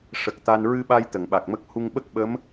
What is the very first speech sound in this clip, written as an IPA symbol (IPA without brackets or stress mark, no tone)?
ʂ